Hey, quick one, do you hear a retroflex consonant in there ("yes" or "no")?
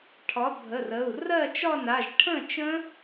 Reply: yes